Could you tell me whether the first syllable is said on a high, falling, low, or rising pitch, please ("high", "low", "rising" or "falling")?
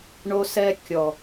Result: high